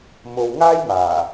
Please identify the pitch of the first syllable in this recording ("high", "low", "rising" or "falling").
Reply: low